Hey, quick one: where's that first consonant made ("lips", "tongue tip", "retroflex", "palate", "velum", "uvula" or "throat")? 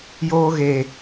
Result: palate